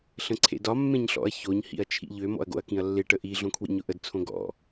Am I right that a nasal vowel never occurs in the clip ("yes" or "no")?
no